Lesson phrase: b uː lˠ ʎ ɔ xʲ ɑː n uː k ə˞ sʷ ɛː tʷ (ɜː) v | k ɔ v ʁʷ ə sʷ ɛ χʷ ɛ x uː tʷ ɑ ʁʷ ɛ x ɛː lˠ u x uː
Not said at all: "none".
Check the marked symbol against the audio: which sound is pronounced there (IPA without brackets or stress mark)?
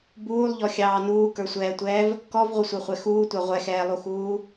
ɛː